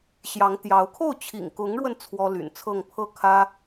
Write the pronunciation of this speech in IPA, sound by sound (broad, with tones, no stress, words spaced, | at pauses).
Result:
ɕjɑ˧˥ŋt̪jɑ˧˥ʊ̯ kʰo˥˩ʊ̯t͡ɕʰḭ˨˩ŋkʊ˧˥ŋɻwə˧n t͡sʰwɔ˥ ly̰˨˩nt͡sʰɤ˥˧ŋ pʰɤ˥˩ kʰä˥